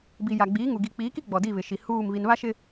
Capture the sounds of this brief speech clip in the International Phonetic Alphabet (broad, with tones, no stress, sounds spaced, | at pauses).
b i˨ j a˨ ɡ͡b iː˨˦ ŋ u˨ ɡ i˨ k͡p iː˨˦ k i˦ ɡ͡b ɔ˨ d i˦˨ β ɪ˨ ʃ i˨ h uː˦˨ m β i˨ n β a˦ ʃ ɪ˦